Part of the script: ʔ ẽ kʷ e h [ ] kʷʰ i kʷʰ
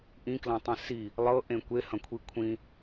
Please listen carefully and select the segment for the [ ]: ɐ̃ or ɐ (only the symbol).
ɐ̃